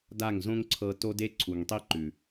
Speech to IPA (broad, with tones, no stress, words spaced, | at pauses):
da˦˨ŋzõ˦ŋǀʰɤ˧ to˦de˦ǀʰu˨ŋtˤi˦ ǃʉ˨